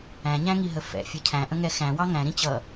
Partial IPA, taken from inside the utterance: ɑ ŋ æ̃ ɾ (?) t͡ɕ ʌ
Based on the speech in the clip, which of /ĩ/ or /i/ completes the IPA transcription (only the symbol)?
ĩ